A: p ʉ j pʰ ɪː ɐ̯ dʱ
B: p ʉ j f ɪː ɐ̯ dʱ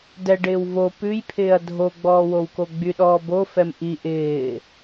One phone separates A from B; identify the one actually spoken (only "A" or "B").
A